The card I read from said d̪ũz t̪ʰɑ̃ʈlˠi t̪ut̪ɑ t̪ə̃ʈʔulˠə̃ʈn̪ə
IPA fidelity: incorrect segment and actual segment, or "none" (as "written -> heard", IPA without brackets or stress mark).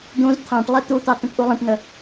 none